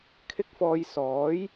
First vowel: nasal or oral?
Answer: oral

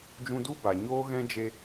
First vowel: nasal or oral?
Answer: nasal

